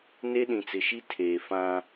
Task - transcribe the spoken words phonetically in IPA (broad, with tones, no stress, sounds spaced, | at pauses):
n e˦ ɗ ĩ˨ t͡s ɪ˨ ʃ i˦ tʰ eː˨ f ã˦